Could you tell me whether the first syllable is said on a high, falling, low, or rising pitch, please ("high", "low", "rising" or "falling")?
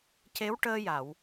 rising